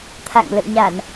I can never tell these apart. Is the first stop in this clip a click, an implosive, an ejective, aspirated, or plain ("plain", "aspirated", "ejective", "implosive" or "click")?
aspirated